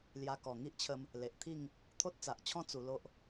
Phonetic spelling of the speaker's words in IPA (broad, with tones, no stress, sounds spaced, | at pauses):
l j a˧ k ɔ˨˩ ŋ i˦ ʔ t͡ɕʰ ə˧ m | l e˨ ʔ t̪ʰ i˥˧ ŋ | t̪ʰ o˦ t̚ t͡s a˨ ʔ t͡ɕʰ ɔ̃˦ t͡s u˧ l o˦ ʔ